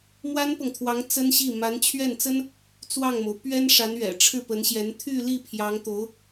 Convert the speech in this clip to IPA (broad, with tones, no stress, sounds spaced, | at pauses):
m w a˥ n p ɤ˨ ŋ t̪ʰ w ɑ˧˥ ŋ t͡s ə˥ n ɕ i˥˩ m a˧˥ n t͡ɕʰ ɥ ɛ˥˩ n t͡s ə˥ n | t͡s w ɑ˥˩ ŋ m o˩ ʊ̯ p ɥ ɛ˥ n ʂ a˧˥ n ɥ ɛ̰˨˩ ʈ͡ʂʰ ɻ̩˥˩ p ə˧˥ n ɕ j ɛ˧˥ n t̪ʰ y˥˧ l i˥˩ pʰ j ɑ˧˥ ŋ t̪ o˧˥ ʊ̯